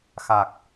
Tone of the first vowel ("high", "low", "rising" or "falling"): low